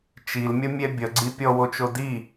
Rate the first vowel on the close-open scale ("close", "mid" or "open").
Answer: close